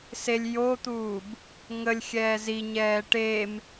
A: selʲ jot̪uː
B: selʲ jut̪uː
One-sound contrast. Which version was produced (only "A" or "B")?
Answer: A